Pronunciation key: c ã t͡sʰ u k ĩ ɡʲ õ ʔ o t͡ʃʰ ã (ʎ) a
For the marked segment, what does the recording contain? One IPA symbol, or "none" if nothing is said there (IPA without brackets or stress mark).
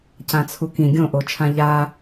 ʎ